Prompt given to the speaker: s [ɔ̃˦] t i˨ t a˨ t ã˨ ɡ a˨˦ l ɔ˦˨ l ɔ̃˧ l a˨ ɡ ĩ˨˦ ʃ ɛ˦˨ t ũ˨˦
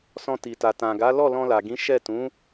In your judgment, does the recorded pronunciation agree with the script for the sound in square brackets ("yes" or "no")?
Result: no